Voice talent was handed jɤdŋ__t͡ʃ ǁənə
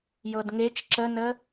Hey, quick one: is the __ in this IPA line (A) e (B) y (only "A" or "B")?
A